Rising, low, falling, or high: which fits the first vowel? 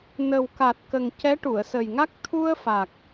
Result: low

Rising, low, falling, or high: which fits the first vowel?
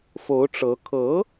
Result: rising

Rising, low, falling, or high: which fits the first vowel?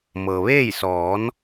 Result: low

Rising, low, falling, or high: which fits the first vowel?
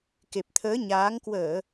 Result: low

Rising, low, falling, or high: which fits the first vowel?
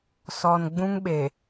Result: low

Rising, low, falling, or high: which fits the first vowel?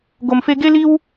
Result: high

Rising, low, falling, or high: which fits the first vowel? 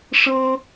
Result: high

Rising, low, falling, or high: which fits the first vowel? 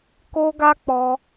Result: high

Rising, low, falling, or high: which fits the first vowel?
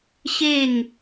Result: falling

